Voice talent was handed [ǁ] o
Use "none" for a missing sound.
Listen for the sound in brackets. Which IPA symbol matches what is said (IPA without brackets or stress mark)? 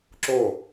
ǁ